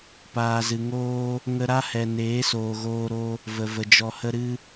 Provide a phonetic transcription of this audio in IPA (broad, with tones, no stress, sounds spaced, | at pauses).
p aː˨ z ɨ˨ ŋ oː˦ | ŋ ə˧ ɾ a˦ h ɛ˨ n eː˨˦ s oː˨ ɣ oː˧ ɾ o˦ | v ə˨ v ə˨ d͡ʒ ɔ˨ h ə˧ ɾ ɨ˦